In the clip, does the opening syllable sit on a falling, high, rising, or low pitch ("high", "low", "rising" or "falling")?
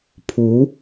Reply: rising